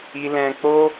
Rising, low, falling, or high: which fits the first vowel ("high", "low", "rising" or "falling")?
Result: high